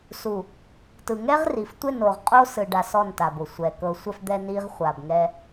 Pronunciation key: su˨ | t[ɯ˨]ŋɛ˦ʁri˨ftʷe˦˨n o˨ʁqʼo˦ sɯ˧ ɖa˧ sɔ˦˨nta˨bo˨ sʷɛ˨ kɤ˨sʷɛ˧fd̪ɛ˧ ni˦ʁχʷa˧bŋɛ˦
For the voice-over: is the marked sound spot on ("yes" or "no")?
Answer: yes